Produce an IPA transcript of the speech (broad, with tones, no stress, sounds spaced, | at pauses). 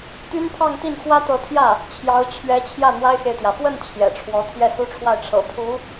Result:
t̪ y˥ n pʰ ɑ˥˧ ŋ t̪ i˥˩ n x w ä˥ t̪ ɤ˧˥ t̪ʰ j ä˥˩ | t͡ɕʰ j ɑ˧˥ ʊ̯ t͡ɕʰ ɥ ɛ˧˥ t͡ɕʰ j ä˥˩ n̪ w a˥ ɪ̯ x e˨ ɪ̯ t̪ j ä˩ f w ə˥˩ n t͡ɕʰ j ɛ̰˨˩ ʈ͡ʂʰ w ɔ˧˥ t̪ʰ j ɛ˥˩ s u˥ ʈ͡ʂʰ w a˥˩ ɪ̯ ʈ͡ʂʰ ɤ̰˨˩ pʰ u˧˥